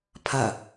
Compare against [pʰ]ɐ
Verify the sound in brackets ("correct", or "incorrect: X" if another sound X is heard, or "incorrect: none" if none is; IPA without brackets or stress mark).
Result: correct